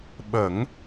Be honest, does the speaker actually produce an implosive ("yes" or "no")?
yes